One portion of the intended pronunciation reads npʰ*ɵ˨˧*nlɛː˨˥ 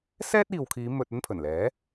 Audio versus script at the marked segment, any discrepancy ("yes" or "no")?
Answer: yes